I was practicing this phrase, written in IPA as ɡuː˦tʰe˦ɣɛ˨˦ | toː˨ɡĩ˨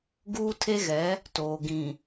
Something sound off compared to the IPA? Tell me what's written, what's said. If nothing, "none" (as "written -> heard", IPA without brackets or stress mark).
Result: none